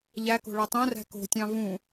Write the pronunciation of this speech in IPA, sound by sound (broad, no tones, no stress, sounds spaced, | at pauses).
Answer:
ʎ æ k o̤ ɭ æ tˤ õ r æ̤ k o̤ tʲ ɑ̃ v ũ